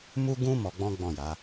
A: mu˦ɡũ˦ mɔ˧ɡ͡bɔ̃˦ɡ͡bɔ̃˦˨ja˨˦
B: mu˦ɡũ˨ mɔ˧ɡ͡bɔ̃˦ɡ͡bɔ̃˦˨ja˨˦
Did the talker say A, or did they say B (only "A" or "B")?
A